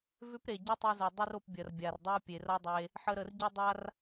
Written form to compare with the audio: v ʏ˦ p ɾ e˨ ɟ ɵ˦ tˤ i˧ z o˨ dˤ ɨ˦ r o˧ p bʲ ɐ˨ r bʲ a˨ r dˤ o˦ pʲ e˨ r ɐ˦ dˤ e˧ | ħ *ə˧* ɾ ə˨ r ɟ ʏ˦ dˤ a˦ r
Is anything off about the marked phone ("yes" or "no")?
no